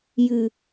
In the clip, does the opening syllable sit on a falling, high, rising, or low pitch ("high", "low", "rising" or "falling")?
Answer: low